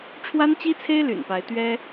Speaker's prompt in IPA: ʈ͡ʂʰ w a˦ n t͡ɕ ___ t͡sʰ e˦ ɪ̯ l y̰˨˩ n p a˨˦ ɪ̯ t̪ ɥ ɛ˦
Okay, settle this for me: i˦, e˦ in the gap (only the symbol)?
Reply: i˦